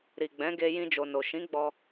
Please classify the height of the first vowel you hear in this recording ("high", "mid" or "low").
high